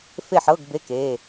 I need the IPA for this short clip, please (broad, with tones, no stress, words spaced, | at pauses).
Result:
fe˥˨ħɤ˧˥˧ɡ be˧˥˧ke˩˧˩